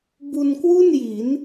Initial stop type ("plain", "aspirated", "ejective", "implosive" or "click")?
plain